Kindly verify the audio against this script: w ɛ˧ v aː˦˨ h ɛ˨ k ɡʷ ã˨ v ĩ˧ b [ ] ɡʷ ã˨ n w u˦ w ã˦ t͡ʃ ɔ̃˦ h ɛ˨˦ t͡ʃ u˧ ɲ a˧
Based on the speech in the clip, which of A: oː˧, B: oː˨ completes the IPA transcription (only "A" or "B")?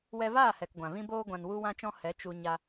A